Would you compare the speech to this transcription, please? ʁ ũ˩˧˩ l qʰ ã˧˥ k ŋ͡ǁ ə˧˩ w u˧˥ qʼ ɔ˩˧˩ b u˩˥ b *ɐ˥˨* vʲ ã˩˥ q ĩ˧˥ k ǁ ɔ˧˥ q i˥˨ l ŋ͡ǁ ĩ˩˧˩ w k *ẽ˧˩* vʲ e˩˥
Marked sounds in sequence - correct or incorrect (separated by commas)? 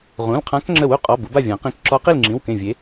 incorrect, correct